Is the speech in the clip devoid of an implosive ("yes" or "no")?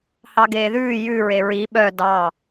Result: no